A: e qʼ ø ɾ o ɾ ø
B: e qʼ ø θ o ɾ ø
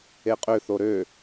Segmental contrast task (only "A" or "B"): B